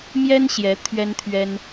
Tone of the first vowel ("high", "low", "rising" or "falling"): high